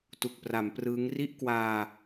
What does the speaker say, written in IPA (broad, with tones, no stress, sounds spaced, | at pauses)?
t u˨˩ k̚ p r a˩˦ m p r ɯː˦˥ ŋ r i˥˩ ʔ k w aː˧